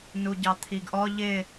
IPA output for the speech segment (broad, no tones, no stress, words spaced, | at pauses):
nuɟɑt̪ʰiɡʔɔ ʎɪ